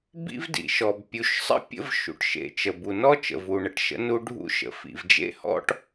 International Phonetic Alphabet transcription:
b ḭ˥ v d ḭ˩ ʃ ɔ˩ b pʲ u˩ ʃ sˤ ə̰˥ pʲ ə̰˥ v ʃ ṵ˩ ʈ ʃ ḛ˩ t͡ʃ ə˩ b u˩ n ɔ˥ t͡ʃ ə̰˩ v u˩ ɳ ə˩ ʈ ʃ ə̰˥ n u˥ ɖʱ ṵ˥ ʃ ə̰˩ f ḭ˩ v d͡ʒ ḛ˥ h ɔ̰˥ ʈ

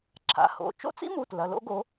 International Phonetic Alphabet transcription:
ǁʰ a̰˨˦ h o̰˩˧˩ t͡ʃ o̰˦˥ t͡s ḭ˦˥ m u˩˧˩ t l ɐ˩˧˩ l o̰˦˥ ɡ o˨˦

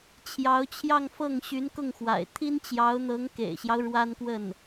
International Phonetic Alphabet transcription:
t͡ɕʰ j ɑ˧˥ ʊ̯ t͡ɕʰ j ɑ˥˧ ŋ f ɤ˥˩ ŋ ɕ y˧˥ n k ʊ˥˩ ŋ x w a̰˨˩ ɪ̯ t̪ʰ i˥ n t͡ɕ j ɑ˧˥ ʊ̯ n̪ ɤ˧˥ ŋ k ḛ˨˩ ɪ̯ ɕ j ɑ˦ ʊ̯ ɻ w a˥ n k w ə˥˩ n

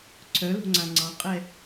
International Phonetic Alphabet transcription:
ǀʰ œ l o̤ ŋ͡ǀ ã ŋ͡ǀ ɑ̃ qʼ ɛ

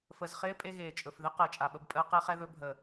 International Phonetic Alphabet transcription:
f ə˨ z χ ɪː˦ pʼ e˦ ɣ eː˨ t͡ʃʼ ɵ˨ f ð ɪ˦ q əː˨ t͡ʃʼ a˨ ɓ ə˦ b pʼ əː˦ q ɛ˦ χ ɛ˦ ð ɵ˦ bʱ ə˨

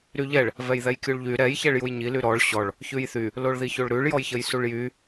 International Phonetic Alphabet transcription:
ɾ y ʎ ɛ ɭ | v ɛ j ð ɛ j kʲ u ɭ ʎ y ɾ ɛ j ç ɛ ɭ j u j ɲ i l y ɾ ɔ ɭ ɕ ɔ ɭ | ç ʉ j θ y | l o ɭ ð i ç o ɭ ɾ ʉ ɭ j ɔ j ç ə j s u ɭ j y

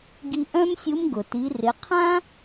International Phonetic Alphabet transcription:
ɡ i˧ ʔ œ̃˥ m sʲ u˧˥ m ɡ ʊ˩ t i˩˧ r ɪ˩˧ qʰ ã˥

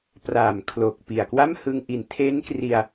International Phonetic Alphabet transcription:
p r aː˨˩ m kʰ l oː˨˩ k̚ p i˨˩ a̯ k w a˥˩ m h ɯ˧ ŋ ʔ i˨˩ n tʰ e˦˥ n k r i˧ a̯

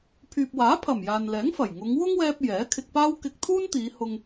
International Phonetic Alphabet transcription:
pʰ yː˨ p̚ w aː˨˥ pʰ ɐ˨˩ m j aː˨ n l ɛː˨˥ ŋ f ɐ˨˩ j ŋ ʊ˨˧ ŋ w ʊ˥ ŋ w ɛː˧ p̚ j ɛː˨˥ kʰ ɪ˧ k̚ p aː˥ w k ɪ˧ k̚ t̪ʰ uː˥ n t̪ iː˨˧ h ʊ˧ ŋ

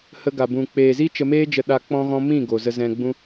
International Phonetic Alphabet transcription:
h ə˧ ɡ a˨ b ũ˨ k͡p eː˨ z i˦ t͡ʃ ə˧ m eː˦ d͡ʒ ə˧ ɗ a˧ k͡p ɔ̃˦ ɣ ɔ̃˦ m ĩ˦˨ ɡ o˨ z ə˧ z ɛ̃˧ ɡ͡b ũ˦

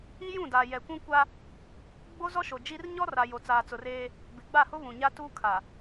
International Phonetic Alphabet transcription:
i˦ j ũ˦˨ d aː˨ j ɛ˨ kʷ ũ˦ kʷ a˦ | ɡ͡b o˦ z ɔ˦ ʃ o˨ d͡ʒ i˦ r ɲ ɔ˦ r a˨ j o˨ t͡s aː˨ t͡s ʊ˨ r eː˦ | b ɪ˨ ɡ͡b a˦˨ h ʊ˦ β ũ˨ ɲ a˦ t uː˦ kʰ a˨

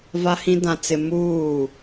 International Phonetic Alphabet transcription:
v a˦ h ĩ˦ d ã˦ t͡s ɪ˦ m uː˦˨

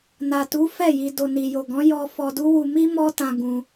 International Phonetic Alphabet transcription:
n a˨ t u˨˦ f ɛ˦˨ j i˧ d o˨ n i˨ j o˨ ɡ ɔ̃˨˦ j ɔ˧ f ɔ˧ d u˦ w u˧ m i˦ m ɔ˦ t ã˧ ɡ ũ˧

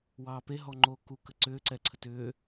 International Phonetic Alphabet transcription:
w ɑː p e ɦ ɔ ŋ͡ǃ oː k u k ə ǀ ʏː ǀ ɛ ǀʰ ə t ʏː

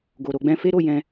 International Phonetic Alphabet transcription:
ɡ o˨ ɾ o˧ ɡ͡b ɛ̃˦ f e˦ ɾ o˦˨ j ɛ̃˧

